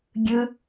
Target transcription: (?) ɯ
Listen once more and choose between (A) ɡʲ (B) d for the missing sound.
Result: A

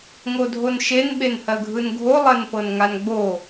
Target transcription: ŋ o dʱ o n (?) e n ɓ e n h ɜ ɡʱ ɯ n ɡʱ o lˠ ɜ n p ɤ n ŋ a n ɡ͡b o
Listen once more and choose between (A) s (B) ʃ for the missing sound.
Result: B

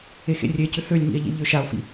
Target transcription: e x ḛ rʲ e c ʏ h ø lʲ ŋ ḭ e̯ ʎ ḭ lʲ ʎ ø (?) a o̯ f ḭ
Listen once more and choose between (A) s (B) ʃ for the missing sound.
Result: B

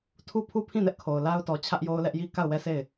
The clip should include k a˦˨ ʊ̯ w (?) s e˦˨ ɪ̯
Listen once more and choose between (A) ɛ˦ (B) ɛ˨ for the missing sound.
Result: A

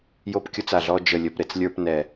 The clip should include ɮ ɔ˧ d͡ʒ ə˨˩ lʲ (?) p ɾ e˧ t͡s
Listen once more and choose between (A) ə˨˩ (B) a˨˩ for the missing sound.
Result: A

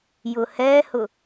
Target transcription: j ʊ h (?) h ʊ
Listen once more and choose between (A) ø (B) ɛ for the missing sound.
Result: B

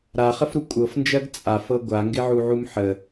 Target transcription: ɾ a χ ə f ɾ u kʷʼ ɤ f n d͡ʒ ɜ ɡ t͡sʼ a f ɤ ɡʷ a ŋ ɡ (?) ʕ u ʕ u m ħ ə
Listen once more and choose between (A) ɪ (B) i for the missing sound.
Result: A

